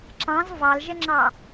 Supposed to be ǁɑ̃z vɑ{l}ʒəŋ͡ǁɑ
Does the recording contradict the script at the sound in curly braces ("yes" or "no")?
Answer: no